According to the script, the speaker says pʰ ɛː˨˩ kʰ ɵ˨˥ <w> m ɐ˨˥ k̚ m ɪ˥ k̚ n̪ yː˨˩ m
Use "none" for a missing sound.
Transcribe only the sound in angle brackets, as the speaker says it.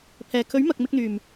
ɥ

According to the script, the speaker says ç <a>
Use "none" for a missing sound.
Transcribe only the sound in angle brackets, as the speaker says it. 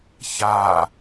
a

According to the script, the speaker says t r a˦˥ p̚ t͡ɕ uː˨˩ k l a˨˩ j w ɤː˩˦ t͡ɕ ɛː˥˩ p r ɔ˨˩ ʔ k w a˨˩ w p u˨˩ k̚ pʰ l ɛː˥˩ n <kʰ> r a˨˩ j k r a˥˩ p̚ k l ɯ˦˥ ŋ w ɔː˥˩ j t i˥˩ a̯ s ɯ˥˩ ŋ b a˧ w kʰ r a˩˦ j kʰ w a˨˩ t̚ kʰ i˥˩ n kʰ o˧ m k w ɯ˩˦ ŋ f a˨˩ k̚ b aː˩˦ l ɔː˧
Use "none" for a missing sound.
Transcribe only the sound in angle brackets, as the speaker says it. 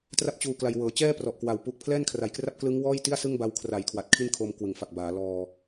kʰ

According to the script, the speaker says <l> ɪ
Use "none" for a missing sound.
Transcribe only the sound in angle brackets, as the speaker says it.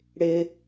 ɽ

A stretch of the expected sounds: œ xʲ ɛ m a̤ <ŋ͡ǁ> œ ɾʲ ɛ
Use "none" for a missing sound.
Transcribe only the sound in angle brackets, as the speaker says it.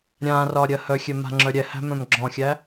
ŋ͡ǁ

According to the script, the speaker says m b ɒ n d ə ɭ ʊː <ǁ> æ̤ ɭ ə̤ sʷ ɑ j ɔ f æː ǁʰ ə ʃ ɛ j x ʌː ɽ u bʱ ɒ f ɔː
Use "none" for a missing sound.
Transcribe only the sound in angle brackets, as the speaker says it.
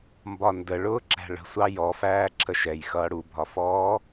ǁ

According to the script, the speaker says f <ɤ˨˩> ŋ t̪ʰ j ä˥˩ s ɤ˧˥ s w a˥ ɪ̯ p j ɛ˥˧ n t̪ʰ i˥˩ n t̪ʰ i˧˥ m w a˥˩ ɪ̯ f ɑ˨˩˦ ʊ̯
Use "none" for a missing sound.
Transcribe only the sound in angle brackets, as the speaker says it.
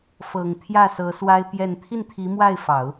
ɤ˨˩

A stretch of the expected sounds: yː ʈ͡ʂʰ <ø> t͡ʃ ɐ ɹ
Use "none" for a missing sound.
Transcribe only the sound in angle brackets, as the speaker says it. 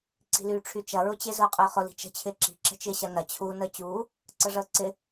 y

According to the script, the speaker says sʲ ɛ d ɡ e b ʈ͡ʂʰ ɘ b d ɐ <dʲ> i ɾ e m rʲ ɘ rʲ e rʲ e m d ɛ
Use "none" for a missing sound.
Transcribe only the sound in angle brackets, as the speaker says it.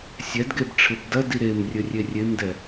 d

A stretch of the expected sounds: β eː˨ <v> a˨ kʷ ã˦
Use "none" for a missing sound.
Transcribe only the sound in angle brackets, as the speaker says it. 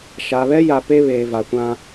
v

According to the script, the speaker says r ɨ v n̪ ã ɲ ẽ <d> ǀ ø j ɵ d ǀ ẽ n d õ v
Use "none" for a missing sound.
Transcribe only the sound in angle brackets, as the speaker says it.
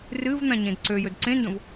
d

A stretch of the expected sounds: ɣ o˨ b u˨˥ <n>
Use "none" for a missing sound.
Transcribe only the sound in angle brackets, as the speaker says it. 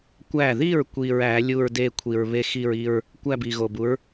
ɹ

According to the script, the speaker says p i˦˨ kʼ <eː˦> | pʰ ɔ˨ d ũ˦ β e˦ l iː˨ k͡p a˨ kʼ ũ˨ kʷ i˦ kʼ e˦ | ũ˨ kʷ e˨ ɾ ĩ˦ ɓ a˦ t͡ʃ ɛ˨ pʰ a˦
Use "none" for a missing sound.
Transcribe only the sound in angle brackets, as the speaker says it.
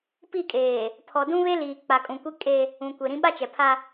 eː˨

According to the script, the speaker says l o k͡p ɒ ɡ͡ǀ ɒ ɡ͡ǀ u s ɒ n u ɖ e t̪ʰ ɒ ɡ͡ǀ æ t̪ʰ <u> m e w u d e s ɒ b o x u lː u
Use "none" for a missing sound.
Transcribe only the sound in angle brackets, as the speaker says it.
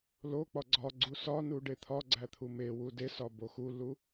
u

